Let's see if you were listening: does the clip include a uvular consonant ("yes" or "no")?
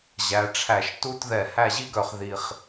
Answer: yes